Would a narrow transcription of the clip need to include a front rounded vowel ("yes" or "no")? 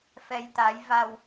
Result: no